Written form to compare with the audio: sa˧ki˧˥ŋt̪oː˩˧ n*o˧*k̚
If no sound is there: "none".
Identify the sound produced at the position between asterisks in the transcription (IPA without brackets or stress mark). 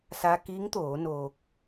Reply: oː˧